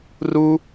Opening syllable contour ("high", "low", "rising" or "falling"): high